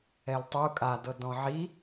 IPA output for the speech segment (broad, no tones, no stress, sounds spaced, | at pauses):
ɛ l tˤ u kʼ a d ɤ d ɔ̃ ʕ i